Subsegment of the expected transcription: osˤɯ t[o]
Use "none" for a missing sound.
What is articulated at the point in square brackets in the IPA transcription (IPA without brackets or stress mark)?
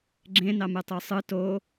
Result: o